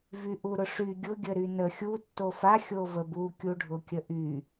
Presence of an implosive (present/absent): absent